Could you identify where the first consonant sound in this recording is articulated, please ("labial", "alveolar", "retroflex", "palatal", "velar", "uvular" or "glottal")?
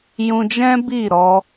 palatal